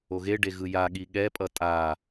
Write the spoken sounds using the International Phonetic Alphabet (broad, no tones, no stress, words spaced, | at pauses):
oɣeɖe ɣɯjaɠi ɠɛpʼʌ tʼa